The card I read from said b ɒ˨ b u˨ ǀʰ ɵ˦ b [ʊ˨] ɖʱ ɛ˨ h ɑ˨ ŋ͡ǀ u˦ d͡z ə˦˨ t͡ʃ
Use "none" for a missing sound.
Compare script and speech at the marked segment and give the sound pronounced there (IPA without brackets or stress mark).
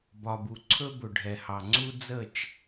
ɵ˨